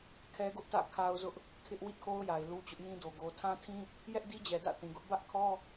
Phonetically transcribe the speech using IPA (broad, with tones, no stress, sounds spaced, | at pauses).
kʰ ɛ˦ ɡ ʊ˦ ʔ t ä̰˦˨ kʰ a˦ ʊ̯ z ʊ˦ ʔ | kʰ ɪ˦ ʔ w ḭ˦˨ kʰ o˦ ʊ̯ j a˨ ɪ̯ l u˦ t͡ɕ ʊ˦ ʔ j ĩ˦ d o˨ ɡ o˨ tʰ ã˦ tʰ ĩ˦ | j ɛ˦ ʔ d i˦ d͡ʑ ɛ˨ d ä̰˦˨ θ ĩ˨ ɡ ʊ˦ ʔ b ä˦ ʔ kʰ ɔ˦